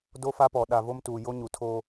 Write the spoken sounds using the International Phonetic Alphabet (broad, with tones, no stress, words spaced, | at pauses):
do˦fa˦pɔ˨ ɗa˨vo˦mtuː˨ jo˦ɲu˨ tʰoː˦